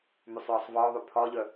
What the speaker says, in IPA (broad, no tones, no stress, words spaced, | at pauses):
mysˤjɒsˤvɒʊ̯ðˤy pʰɒʎœ